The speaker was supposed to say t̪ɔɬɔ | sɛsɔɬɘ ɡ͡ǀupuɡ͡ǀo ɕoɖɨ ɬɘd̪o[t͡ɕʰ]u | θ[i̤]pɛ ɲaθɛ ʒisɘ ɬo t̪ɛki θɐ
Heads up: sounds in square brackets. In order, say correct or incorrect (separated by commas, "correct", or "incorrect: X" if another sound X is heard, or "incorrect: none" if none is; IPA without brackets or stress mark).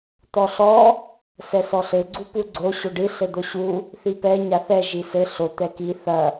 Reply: incorrect: ɕ, incorrect: i